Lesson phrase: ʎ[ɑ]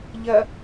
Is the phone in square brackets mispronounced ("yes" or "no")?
yes